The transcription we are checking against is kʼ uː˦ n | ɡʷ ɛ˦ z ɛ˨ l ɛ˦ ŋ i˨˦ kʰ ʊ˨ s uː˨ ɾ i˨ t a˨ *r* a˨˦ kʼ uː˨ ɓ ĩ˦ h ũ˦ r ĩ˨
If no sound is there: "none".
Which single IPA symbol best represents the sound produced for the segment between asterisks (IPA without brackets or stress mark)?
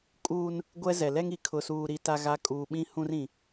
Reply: ɣ